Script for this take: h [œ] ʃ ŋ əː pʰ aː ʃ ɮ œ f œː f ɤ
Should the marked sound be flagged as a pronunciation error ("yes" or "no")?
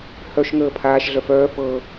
no